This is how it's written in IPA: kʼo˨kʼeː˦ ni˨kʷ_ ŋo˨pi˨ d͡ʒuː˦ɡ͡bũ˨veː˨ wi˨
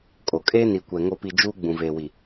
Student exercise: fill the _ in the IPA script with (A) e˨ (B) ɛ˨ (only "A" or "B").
B